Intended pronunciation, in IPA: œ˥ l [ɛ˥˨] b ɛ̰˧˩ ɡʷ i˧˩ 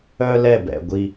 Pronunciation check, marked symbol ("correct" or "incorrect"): correct